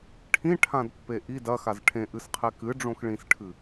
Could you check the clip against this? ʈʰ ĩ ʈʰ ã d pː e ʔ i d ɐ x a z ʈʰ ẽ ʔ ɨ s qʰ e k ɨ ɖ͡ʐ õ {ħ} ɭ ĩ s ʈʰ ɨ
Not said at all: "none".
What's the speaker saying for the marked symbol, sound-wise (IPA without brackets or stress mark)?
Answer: x